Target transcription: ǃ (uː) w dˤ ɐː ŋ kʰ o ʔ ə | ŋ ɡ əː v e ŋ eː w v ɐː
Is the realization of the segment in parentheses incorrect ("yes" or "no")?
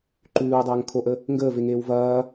yes